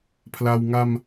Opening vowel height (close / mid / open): open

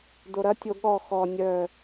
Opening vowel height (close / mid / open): mid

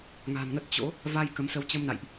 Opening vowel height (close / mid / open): open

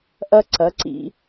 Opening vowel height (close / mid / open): open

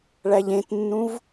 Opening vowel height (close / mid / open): open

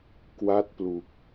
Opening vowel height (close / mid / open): open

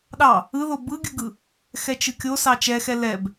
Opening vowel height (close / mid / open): open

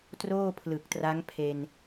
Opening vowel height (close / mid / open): mid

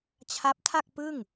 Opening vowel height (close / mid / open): open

